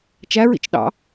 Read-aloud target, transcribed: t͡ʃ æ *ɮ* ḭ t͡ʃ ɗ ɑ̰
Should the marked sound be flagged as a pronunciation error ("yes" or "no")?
yes